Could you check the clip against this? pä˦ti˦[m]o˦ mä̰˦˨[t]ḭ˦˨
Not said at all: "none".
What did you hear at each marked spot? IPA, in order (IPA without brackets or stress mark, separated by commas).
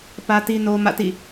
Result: n, t